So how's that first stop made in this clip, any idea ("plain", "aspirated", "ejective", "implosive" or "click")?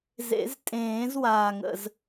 ejective